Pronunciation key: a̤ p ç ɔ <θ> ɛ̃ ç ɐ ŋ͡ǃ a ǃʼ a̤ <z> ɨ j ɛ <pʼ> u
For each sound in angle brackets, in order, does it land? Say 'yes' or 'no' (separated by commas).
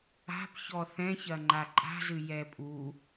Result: yes, yes, yes